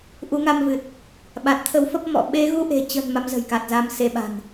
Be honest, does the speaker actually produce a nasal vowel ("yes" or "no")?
no